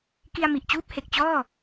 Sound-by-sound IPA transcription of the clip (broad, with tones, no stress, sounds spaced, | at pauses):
k i˧ a̯ m i˨˩ ʔ t͡ɕ uː˦˥ p̚ h e˨˩ k̚ t͡ɕ ɔː˥˩